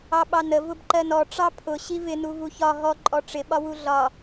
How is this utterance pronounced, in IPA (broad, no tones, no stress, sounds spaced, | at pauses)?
ɑ ɓ ɑ n ə v ʊ b ǃ ɜ n ɔ ʈ͡ʂ ɑ pʰ ʊ ɕ i v ɪ n u v u ç ɒ ɦ ɔ ǃʼ ɔ ʈ͡ʂ ɪ ɓ ɒ w u ɮ ɒ